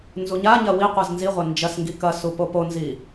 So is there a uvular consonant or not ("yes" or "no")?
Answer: yes